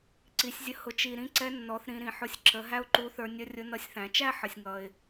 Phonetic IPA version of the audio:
ǀ i˩˧ sʲ zʲ ə˧ h ʊ˩˧ t͡ʃ i˩ ɾ ĩ˧ ǀ ɛ˧˥ nː ɔ˩˧ θ ɾ ĩ˩˧ ɾ ĩ˩ ħ ʊ˧ sʲ ǁ ə˩˧ ɦ æ˥ ʊ̯ ǃ u˧˥ θ ə˞˧ nʲ ʌ˧˥ rʲ ʊ˧˥ n ʌ˧˥ sʲ θ æ̃˩˧ t͡ʃ æ˥ ħ ə˩ sʲ ŋ ʌ˩ ɪ̯

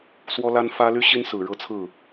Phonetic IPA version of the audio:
s w ɔ˥ l a˥ n f ä˥ l y˥ ɕ i˥ n s ɹ̩˨˩ ɻ ɤ˥˧ t͡sʰ ɹ̩˥˩

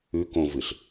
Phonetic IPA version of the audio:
ʉ k õ v ɨ ɬ

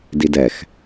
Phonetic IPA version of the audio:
d i d ɛ x

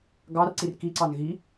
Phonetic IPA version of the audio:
ɡ ɑ r ǀ i r k i ǀ ɑ n ɣ i

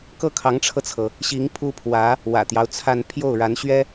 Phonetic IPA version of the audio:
k ɤ˥˩ kʰ ɑ˧˥ ŋ ʈ͡ʂʰ ɤ˧ t͡sʰ ɤ˩ | ɕ i˧˥ ŋ pʰ u˥ pʰ w ä˧˥ | w ä̰˨˩ t̪ j ɑ˦ ʊ̯ t͡sʰ a˥˧ n pʰ j o˥˩ ʊ̯ ɻ a˧˥ n ɕ ɥ ɛ˥

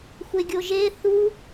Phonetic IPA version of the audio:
xʷ e ɡʲ o ʒ e θ u

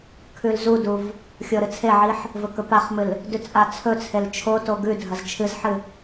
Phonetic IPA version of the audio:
kʰ ʉ l z u d u v | xʲ o ɾ ɨ t͡sʰ e ʕ i ħ | v ɵ k ɵ p a χ m ɨ l | d ʉ t͡sʼ a t͡sʰ ɵ t͡sʰ e l t͡ʃʰ o t o ɡ ʉ dʱ ɐ z t͡ʃʰ ɨ z ħ ɨ

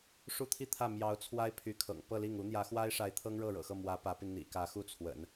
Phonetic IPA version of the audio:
ʂ u˥˧ t̪ʰ i˥˧ t̪ʰ ä˥˩ m j ɑ˧˥ ʊ̯ t͡sʰ w a˥ ɪ̯ pʰ y˧˥ kʰ ɤ̰˨˩ ŋ p ɤ˥˧ l i˥˩ ŋ u˧˥ n̪ j ä˧˥ x w a˥ ɪ̯ ʂ a˧˥ ɪ̯ t̪ʰ ɤ˥ ŋ ɻ ɤ˥˩ ɻ ɤ̰˨˩ x ɤ˥˩ m w ä˧˥ p ä˧˥ p i˧ n n̪ ḭ˨˩ k ä˧˥ x u˥˩ t͡sʰ w ə̰˨˩˦ n

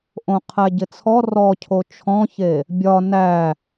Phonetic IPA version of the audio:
ʔ õ qʰ æ ɟ ɪ t͡sʰ ɔ r ɔ cʰ o t͡ʃʰ ɔ̃ ç e | bʲ ɒ n æ

